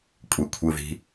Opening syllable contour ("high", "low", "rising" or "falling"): low